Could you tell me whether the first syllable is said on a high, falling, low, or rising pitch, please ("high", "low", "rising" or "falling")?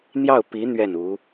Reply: falling